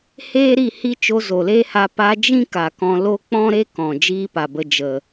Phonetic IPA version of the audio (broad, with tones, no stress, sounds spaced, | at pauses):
h eː˦ ɾ i˦˨ h i˦ t͡ʃ o˧ z o˨ l eː˦ h a˧ p a˧ d͡ʒ ĩ˦ k a˨ k ɔ̃˧ l o˧ k͡p ɔ̃˦ ɾ e˦ k ɔ̃˨ d͡ʒ iː˦ p a˨ b ə˧ d͡ʒ ə˨